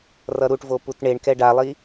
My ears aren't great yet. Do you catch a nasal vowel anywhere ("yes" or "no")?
no